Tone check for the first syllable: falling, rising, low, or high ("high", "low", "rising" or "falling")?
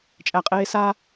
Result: low